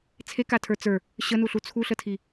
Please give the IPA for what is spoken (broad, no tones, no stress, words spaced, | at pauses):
t͡sʰekatʰə˞ t͡sə˞ | ɕənuɬu t͡sʰuɬətʰi